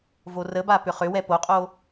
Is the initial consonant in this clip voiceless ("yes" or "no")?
no